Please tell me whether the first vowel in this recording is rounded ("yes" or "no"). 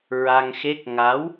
no